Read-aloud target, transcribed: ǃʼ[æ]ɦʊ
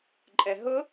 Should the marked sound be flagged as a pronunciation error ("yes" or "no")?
yes